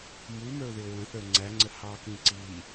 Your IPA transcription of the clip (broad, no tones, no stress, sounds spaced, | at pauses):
m u m ə˞ ʊ̯ ð ɪ ʊ̯ ɹ ə̃ θ ə˞ ŋ͡ǀ æ ŋ͡ǀ ə h ɑ k ĩ ǀ i